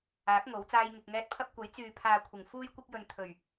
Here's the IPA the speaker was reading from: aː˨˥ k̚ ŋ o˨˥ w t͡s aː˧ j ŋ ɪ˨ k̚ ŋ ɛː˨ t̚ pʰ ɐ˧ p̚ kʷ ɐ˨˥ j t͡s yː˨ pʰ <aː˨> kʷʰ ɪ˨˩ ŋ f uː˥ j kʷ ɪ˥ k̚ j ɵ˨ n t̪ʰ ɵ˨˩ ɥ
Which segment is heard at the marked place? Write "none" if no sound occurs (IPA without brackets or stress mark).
aː˨